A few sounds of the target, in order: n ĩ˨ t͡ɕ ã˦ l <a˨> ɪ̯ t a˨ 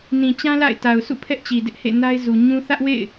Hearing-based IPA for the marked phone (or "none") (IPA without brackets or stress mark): a̰˦˨